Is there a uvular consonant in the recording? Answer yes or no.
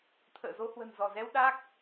no